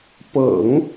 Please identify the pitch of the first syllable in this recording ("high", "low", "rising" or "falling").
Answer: low